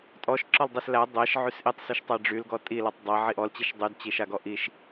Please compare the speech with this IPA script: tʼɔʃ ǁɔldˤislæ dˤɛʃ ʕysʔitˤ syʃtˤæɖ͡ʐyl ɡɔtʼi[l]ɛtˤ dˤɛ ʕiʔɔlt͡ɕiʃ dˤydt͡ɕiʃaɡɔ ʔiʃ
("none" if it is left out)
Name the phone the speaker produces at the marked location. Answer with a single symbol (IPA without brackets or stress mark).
l